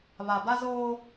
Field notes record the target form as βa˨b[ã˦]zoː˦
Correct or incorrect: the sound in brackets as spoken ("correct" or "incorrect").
incorrect